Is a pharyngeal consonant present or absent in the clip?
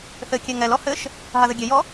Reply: absent